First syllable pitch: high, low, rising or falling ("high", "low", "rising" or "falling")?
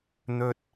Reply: high